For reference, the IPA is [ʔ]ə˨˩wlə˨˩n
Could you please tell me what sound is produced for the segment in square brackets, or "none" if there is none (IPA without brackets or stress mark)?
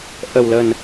ʔ